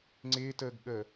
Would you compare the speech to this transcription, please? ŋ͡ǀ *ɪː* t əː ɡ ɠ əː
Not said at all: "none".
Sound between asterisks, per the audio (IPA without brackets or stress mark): ɪː